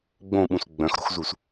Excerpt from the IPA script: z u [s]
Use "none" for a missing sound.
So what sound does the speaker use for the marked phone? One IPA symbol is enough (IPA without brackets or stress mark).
s